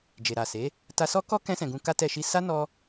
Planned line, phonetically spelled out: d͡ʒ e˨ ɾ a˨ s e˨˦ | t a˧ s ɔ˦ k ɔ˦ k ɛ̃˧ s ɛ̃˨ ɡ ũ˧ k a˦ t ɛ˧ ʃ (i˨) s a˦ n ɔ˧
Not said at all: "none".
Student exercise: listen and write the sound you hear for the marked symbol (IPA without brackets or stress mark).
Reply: i˧